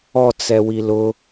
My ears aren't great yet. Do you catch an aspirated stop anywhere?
no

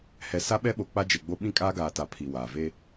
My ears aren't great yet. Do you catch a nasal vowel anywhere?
yes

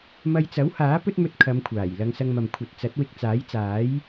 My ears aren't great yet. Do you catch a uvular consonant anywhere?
no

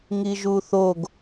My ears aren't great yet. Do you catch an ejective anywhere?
no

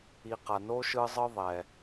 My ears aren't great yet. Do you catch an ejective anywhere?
no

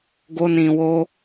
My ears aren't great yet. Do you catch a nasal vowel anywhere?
yes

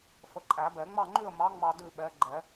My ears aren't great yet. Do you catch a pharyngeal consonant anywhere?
no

